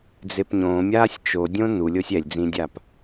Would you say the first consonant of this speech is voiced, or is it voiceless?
voiced